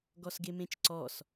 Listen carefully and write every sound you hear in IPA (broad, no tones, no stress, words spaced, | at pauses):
ɡɔsɡemẽt͡ʃǀɔs